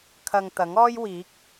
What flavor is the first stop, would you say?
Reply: aspirated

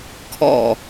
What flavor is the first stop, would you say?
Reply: aspirated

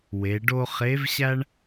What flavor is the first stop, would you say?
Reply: plain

